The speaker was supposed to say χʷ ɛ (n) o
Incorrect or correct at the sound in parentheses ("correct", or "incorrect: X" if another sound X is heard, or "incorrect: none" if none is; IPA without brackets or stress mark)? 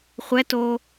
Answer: incorrect: t